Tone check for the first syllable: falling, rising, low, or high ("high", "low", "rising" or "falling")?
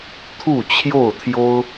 falling